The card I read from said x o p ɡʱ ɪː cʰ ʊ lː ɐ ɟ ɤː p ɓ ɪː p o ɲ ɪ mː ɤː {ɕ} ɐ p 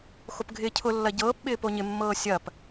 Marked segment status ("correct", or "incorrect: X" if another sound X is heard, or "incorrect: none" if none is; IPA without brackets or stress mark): incorrect: sʲ